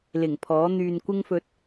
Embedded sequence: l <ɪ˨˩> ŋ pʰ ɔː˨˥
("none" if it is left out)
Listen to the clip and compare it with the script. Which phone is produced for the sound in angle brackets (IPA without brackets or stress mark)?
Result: ɪ˨˩